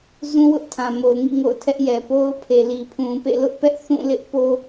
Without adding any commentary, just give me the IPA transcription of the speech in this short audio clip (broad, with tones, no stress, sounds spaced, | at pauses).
z ũ˦ w ʊ˦ ʔ tʰ ã˨ m o˨ ʊ̯ ŋ ḭ˦˨ ŋ o̰˦˨ ʊ̯ tʰ ɛ˦ ʔ j ɛ˨ p o˦ ʊ̯ pʰ e˨ l i˨ pʰ ũ˨ p ḛ˦˨ l ʊ˦ ʔ p ɛ˦ ʔ θ ũ˦˨ l ɪ˦ ʔ p o˦